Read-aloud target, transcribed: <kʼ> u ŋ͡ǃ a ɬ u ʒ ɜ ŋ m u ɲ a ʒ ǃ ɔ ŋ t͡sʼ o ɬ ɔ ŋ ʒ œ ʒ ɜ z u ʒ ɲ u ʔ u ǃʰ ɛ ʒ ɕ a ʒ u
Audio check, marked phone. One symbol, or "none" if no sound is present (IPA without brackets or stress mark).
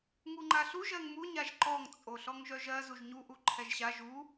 ŋ